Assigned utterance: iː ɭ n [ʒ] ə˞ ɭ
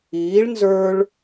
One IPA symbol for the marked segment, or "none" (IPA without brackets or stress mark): z